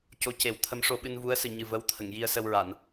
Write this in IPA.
co˧˥ce˨˩˦wt̪ʰə˧˥m ʂo˧ɓɨ˧n vu˧˥ə̯ sɨ˨˩ɲɨ˨˩ və˧˥wt̪ʰə˨˩˨ŋ ji˧ə̯sə˧wɹa˨˩˨n

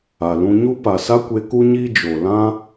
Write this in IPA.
a˨lũ˧ɲu˦ pa˨sa˦kʷe˧ ku˦ɲiː˦ d͡ʒo˨lã˦

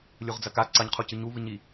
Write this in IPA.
lʲuʁd͡zɐka ǀɐɲqʰucɨ ɲuvɨɲi

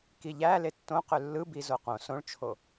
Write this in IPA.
kiʎæ letːõqø lːɯbi zoqõ sõɭt͡ʃʰo

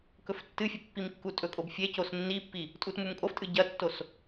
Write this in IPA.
kɵftːɨfʲɐ pːimkːutʼɵkʼob fʲecos nːipːi | tʼutmumkʼoftʼɨ ɟɐtːos

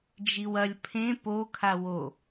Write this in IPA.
d͡ʒiwɐlʲ pʰẽ po kʰawo

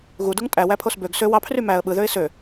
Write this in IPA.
ɣuduŋ tʼæwæpʰos bøɡ sø wɑpʰry mæə̯ ɓɯðøɪ̯ sø

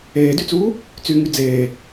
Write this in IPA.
eːdyt͡suː | t͡syŋy d͡zeː

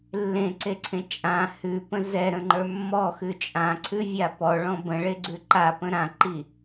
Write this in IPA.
lːẽǀeǀʰẽ t͡ʃʼã hʉpə̃ zɛɾə̃ŋ͡ǃə˞ mːɔxʉ t͡ʃʼãǀʰʉvʲa pɔɭɔ̃ bə̃ɭeɡ͡ǀʉ ǃapə̃ ɾãǃi

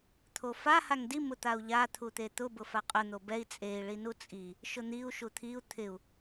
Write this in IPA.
t̪ʰofa haŋdi mʊt̪au̯ʎa t̪ʰut̪et̪ʊ bʊfaqʼʊ n̪obɛi̯ t͡sʼei̯ ɭinut͡sʼi | ʃʊn̪iu̯ ʃut̪ʰiu̯ t̪ʰɪu̯

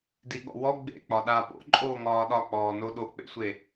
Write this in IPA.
diɠɔ̰wɔ ɡ͡bḛk͡pɒ ɗa po̰ǃʼoː ŋɒːɗɒk͡pɔːno ɗok͡pḛsʷe

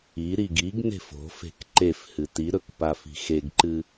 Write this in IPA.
iɾiɡ iɡne̤f o̤fe̤k ǃefhɨ tiɾɵkpafi̤ xeɡǃɨ

